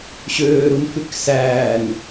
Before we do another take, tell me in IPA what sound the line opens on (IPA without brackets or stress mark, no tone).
ɕ